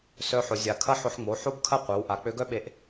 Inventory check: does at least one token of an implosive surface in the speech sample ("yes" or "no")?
yes